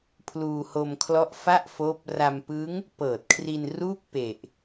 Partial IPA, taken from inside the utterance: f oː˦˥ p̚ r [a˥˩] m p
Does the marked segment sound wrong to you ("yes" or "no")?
yes